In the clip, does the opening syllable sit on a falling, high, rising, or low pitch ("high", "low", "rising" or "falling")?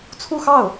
falling